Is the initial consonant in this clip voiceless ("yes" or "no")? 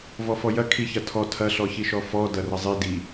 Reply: no